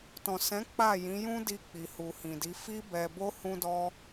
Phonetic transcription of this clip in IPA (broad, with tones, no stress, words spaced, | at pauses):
tɔ̃˨sɛ̃˨˦ k͡pa˦˨ jĩ˨˦jũ˦di˧ k͡pi˨hu˨hĩ˨di˨˦ fi˧bɛ˨bo˧ hũ˦dɔ˦